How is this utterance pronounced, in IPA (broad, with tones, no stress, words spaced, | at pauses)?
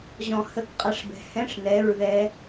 ʑɔ̃˧hə˧˥˧k qʼa˧˥˧ʂbɛ̤˧ hɛ̃˧˥˧ʂ nɛ˧˥˧ɹðɛ˦˥